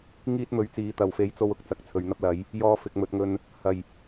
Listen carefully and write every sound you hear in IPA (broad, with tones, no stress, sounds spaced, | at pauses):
ŋ iː˥ t̚ m ɵ˨˥ ɥ t͡s iː˨˧ t̪ ɐ˨ w f e˨˥ j t͡s o˧ w ʊ˨ k̚ t͡s ɐ˨ k̚ t͡sʰ ɵ˨˧ ɥ n̪ ɐ˥ p̚ l ɐ˨˥ j | j ɔː˧ f ɪ˨ k̚ m ɵ˨ t̚ ŋ ɵ˧ n | h ɐ˨˩ j